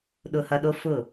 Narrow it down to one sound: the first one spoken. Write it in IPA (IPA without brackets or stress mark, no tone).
ɗ